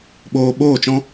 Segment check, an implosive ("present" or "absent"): present